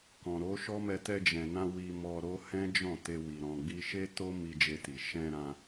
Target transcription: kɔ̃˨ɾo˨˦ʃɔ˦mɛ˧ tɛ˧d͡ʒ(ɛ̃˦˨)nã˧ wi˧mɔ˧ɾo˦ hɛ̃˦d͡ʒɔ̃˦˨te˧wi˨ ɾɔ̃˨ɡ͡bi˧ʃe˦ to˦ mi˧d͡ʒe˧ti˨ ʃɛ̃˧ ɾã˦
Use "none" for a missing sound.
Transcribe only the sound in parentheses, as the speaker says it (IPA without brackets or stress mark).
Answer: ɛ̃˨